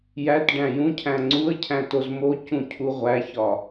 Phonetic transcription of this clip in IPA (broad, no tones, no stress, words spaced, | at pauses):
jæt ɖæ̃jũcʰæ̃ ŋ͡ǀuə̯cʰæ̃ tozmocũ cʰuʁʷæçɒ